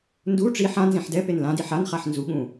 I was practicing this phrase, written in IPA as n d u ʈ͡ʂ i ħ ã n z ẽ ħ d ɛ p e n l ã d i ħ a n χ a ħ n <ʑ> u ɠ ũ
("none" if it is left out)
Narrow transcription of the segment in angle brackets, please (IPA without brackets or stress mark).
z